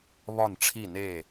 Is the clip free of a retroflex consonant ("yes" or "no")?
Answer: no